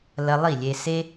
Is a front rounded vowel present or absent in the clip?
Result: absent